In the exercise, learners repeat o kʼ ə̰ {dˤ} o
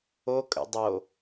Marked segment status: correct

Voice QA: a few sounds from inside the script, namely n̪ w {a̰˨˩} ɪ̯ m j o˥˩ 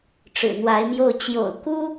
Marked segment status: incorrect: a˧˥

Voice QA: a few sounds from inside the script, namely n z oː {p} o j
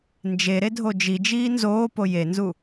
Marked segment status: correct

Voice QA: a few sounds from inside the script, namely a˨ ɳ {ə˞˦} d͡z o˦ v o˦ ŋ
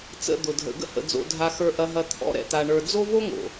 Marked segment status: incorrect: ə˞˨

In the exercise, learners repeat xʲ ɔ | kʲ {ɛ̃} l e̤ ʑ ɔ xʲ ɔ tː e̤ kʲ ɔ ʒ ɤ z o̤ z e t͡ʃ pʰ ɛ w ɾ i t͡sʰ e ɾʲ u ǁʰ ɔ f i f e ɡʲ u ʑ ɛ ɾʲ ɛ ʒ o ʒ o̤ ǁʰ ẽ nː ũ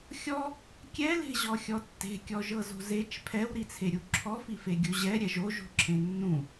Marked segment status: incorrect: ɛ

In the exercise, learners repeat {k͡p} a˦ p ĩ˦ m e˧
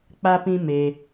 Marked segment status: correct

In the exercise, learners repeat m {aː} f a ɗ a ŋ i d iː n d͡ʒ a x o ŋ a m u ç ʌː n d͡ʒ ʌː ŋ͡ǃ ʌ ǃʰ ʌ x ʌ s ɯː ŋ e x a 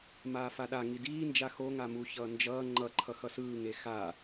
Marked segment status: correct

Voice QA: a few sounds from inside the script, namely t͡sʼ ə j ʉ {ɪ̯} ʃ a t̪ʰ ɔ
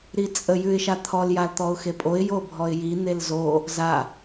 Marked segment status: correct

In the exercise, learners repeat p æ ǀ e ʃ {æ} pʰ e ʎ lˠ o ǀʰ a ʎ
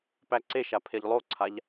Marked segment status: incorrect: a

